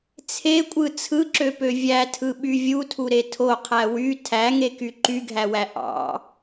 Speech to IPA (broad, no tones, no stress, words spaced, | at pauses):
t͡sʰekʷʼɯ t͡sʰɯǁøpø vʲætʰɯɓy vʲutʰuɾe tʰoqʰæ wy tʰæŋeky ǃyɡʱæwæ ʔɑ̰